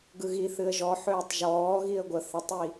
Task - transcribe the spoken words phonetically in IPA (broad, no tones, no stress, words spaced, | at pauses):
ɡɯɣiθɨə̯ ʒɔ ħøːtˤʒɔːɣiə̯ ɡʷə θətˤi